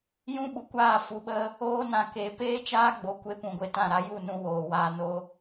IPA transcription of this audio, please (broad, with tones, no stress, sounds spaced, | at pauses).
j ũ˦ ɓ u˨ kʷ aː˦˨ f u˨ ɓ ə˧ | oː˦ n ã˧ k e˨˦ p eː˦ t͡ʃ aː˦ ɡ͡b o˨ kʷ e˧ p ũ˨ ɡʷ e˧ t ã˦˨ ɾ a˦ j u˦˨ n ũ˧ w oː˨ w aː˧ n o˦